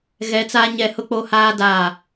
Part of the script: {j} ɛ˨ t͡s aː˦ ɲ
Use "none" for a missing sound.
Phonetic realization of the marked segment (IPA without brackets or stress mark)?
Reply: ɣ